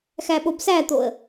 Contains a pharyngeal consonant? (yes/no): no